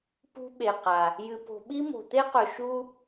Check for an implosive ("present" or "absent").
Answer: present